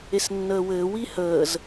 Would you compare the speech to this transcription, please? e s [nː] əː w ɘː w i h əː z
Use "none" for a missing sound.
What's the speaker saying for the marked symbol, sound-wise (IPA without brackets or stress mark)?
nː